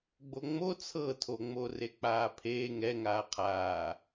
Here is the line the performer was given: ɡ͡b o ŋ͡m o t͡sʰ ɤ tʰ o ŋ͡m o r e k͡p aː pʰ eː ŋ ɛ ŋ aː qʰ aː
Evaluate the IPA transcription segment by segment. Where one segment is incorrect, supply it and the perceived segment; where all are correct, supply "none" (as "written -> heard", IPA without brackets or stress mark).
none